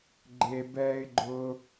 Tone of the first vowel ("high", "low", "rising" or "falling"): low